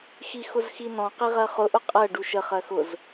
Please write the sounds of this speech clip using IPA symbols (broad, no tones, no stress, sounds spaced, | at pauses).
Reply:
x i x ʊ z x i n ɔ̃ q i ʁ ɜ χ ʊ ʔ ʊ qʼ ɜ ɖ u ʃ ə χ ɜ x ʊ z